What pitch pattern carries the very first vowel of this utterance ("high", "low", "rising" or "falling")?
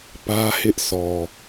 high